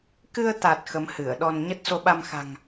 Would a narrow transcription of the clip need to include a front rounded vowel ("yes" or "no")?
no